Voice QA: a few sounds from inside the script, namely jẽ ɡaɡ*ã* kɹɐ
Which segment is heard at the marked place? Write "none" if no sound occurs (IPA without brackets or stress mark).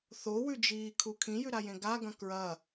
ɐ̃